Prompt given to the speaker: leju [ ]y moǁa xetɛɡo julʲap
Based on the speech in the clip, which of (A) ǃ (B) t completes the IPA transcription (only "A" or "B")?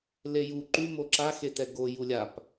A